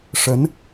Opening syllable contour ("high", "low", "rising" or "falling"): rising